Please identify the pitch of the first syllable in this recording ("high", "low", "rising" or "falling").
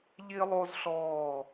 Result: high